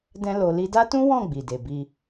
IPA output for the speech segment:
d ɛ̃˦ l o˧ l i˧ d a˦ t ũ˦ w ɔ̃˦˨ ɡ͡b i˨ d e˨ b i˧

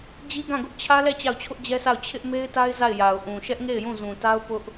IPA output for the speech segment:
d͡ʑ i˦ ɡ ã˦˨ ɡ ʊ˦ ʔ t͡ɕʰ ä˦ l ɛ˦˨ t͡ɕ a˦˨ ʊ̯ t͡ɕʰ ʊ˦ ʔ d͡ʑ ɛ˦ sʰ a˦˨ ʊ̯ t͡ɕʰ ɪ˦ ʔ m e˦ ɪ̯ t a˦ ɪ̯ z a˦˨ ɪ̯ j a˨ ʊ̯ ʔ ũ˨ ʃ ɛ˦ ʔ ŋ e˦˨ ɪ̯ j ũ˦˨ z ũ˨ t a˦ ʊ̯ p ʊ˦ ʔ

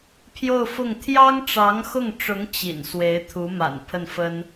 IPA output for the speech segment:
pʰ j o˥˧ ʊ̯ f ʊ˥˩ ŋ t̪ʰ j ɑ˥ ŋ ʈ͡ʂ ɑ˧˥ ŋ x ʊ˥˩ ŋ ʈ͡ʂ ʊ˧˥ ŋ t͡ɕ ḭ˨˩ n s w e˧˥ ɪ̯ t̪ʰ u˧˥ m a̰˨˩ n pʰ ə˥˩ n f ə˥ n

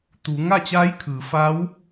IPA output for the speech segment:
t̪ uː˩˧ ŋ a˥˨ t͡ɕ aː˧˥ j kʰ ɯː˩˧ f aː˧˥ w

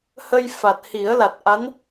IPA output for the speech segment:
h ə˧ j f a˨˩ t̚ h i˨˩˦ ə̯ l a˨˩ t̚ ʔ a˧˥ n

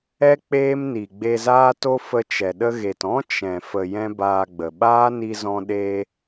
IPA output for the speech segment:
ɛ˦ k͡p eː˦ m n i˨ ɡ͡b e˧ z aː˦ t o˦ f ə˧ t͡ʃ ɛ˨ ɗ ə˧ ɣ e˨ t ɔ̃˦ t͡ʃ ɛ̃˨ f ə˨ j ɛ̃˦ b aː˧ ɡ͡b ə˨ ɓ aː˦ n i˧ z ɔ̃˧ ɗ e˧

